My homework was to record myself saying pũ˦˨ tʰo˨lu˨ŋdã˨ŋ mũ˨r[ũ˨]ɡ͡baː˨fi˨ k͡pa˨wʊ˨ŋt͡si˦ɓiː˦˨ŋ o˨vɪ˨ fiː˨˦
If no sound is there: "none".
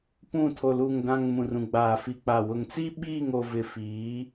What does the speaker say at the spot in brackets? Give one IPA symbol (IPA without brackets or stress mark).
ũ˨